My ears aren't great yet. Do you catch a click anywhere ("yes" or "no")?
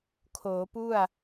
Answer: no